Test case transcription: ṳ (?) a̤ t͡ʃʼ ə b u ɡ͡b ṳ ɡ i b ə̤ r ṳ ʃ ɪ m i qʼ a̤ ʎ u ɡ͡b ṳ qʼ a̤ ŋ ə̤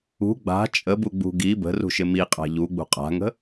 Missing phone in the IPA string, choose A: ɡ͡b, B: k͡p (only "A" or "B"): A